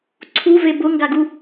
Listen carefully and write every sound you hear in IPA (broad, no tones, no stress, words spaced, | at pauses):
ǀʰuve bʊŋɡaɡu